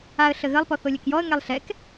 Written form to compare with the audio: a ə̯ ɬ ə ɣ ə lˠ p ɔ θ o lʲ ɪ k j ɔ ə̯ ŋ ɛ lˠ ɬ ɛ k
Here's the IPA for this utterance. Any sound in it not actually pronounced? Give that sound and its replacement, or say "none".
ɪ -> ɛ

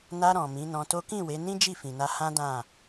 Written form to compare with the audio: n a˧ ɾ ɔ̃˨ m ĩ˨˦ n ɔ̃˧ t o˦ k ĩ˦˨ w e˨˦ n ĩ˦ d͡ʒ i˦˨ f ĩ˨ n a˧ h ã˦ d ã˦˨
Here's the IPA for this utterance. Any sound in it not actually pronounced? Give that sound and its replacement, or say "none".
none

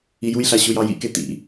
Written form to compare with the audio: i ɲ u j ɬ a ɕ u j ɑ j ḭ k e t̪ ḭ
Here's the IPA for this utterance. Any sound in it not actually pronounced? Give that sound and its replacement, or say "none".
ɲ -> j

